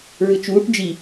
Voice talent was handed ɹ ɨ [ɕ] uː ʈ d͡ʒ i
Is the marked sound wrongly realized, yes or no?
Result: yes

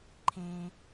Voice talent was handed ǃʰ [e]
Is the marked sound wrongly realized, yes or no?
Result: yes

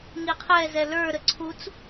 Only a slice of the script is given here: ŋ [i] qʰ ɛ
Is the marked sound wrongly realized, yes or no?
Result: no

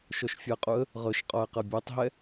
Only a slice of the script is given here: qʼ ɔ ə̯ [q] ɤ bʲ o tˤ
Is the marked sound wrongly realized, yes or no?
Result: no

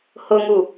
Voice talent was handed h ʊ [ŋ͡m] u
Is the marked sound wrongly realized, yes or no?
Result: yes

